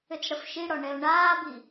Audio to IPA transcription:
ʏt͡sɽəfʃiɽɔ ɳɛʊ̯ɳaːbi

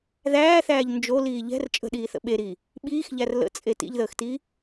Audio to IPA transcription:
ðæːθæːʎ nd͡ʒoliː ʎɛ̤r t͡ʃʼə̤ɗiːθə̰ ɓeɾiː | ɓiːxʎær lə̰t͡sʼe tḭʎðəːxtiː

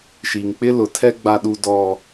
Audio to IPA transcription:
ʃi˨ŋk͡pɪ˦lʊ˨tʰɛ˦ ɡ͡ba˦ɗu˦dɔ˦

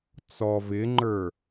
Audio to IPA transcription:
t͡sɔ vɪŋ͡ǃə˞

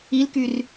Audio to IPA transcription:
ilkyr

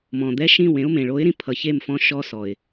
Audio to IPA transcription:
mɔ̃˨d̪ɛ˦ʃĩ˦˨w ẽ˦ʊ̯ mẽ˨ɭo˨˦ɪ̯ɾĩ˨˦ pʰʌ˨çe˦˨m fɔ̃˦ʃɔ˦sɔ˨ɪ̯

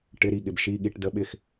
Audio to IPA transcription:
ʈɪ˧˥˧ɾi˥˩ɠɪ˧b ʃi˧˥˧ɠi˧˥˧ʈ də˧˥˧ɓɪ˥˩x

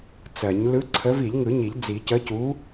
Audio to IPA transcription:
t͡sɜ˨˩˦ɲ lɯ˨˥ǀʰə˨˥v i˨˩˦ʎŋɯ˨˩˦ɲi˨˩˦ʎ d͡zi˨˩˦cə˨˥cu˨˥

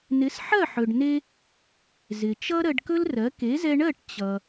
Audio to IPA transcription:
nɪ˩˥sħɜ˥˩ħɵ˩ɖne˧ | zɪ˩t͡ʃʌ˥ ɾɜ˧ɖkɵ˥lrɜ˩˥ ke˩˥zɛ˧ɳɜ˥˩ʈ t͡ɕʌ˩

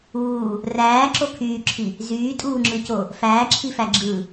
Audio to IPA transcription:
uː | ræːǁo kʰyːǁʰi | zyːtʼuːŋ͡ǁɯco | fæːǁʰifæ ɡ͡ǁɯ

